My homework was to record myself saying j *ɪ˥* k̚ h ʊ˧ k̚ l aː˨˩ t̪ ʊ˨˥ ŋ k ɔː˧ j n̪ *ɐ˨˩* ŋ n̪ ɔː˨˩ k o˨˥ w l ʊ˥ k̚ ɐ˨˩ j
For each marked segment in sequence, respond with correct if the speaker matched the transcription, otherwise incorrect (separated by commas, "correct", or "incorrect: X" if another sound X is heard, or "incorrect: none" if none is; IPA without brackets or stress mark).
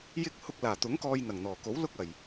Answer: correct, correct